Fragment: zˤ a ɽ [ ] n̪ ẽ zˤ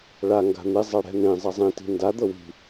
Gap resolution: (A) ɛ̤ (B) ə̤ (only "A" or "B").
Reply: A